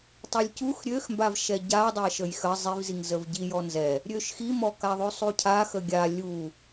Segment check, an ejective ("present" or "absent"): absent